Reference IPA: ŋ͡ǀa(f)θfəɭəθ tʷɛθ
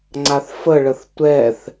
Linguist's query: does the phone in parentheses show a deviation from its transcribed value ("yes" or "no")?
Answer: yes